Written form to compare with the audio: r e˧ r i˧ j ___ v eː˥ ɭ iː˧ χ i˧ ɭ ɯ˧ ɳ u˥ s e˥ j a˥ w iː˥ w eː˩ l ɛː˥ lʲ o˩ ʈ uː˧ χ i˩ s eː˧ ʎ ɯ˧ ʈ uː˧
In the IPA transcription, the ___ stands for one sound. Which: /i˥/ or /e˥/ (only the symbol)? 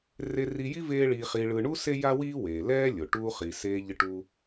i˥